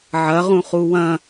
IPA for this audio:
ʕɐ ʁũχuwɐ̃

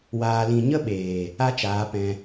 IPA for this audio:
waː˨lĩ˨ɲə˦ ɓeː˨ | a˦t͡ʃaː˨˦ pɛ̃˧

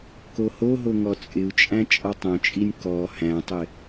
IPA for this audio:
kohoɦo ŋɔt͡sʼɪu̯t͡ʃʼæ̃ t͡ʃʼɔtˤõt͡ʃʼinʲ kɔ hæ̃tˤɪ

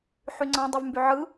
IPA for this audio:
ħyŋ͡ǀɑ̃ dˤyvmbyʕɯ

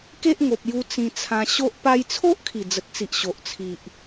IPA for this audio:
ke˦ʔŋo˨p̚ju˧ t͡sĩ˧t͡sʰã˧ ɕo˦ʔ pa˧jt͡sʰo˦ʔ kʰi˨˩d͡zə˨t̚t͡si˨ʔ ɕo˨ʔt͡sʰi˨ʔ

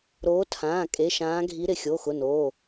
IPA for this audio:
ɾoː˨˦tʰãː˩˧˩ kʼe˩˧˩ʃãː˨˦ɡʱi˨˦ ɾɪ˩˧˩xʲo˩˧˩xʊ˩˧˩noː˩˧˩

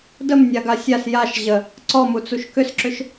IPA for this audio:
dəmnʲaɡa sʲas jaʃ ʑə | ǀɔmut͡suʃ kʏsǁʏʃ

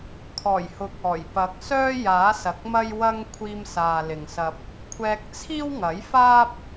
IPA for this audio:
kʰɔː˨˩jhʊ˨˥k̚ɔː˨˩j pɐ˨˥k̚sœː˥ jaː˨˥sɐ˨k̚mɐ˥jwɐ˥ŋ kʷʰiː˧msaː˨ lɪ˨ŋsɐ˧p̚ | kʷʰɛː˧k̚t͡sʰiː˥wŋɐ˨˥jfaː˥p̚

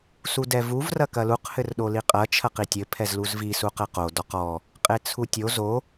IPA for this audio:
sudɛvuv rɐkɐluq hɘrɗoliqʼɐ t͡ʃʰɐqitʲɘ pʰɛzluzvi suqɛqo dɔqɔ | qʼet͡sʰutʲo zo

